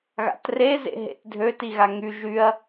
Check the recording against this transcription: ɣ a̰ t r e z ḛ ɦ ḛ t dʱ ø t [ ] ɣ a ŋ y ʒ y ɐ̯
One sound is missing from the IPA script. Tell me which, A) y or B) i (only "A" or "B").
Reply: B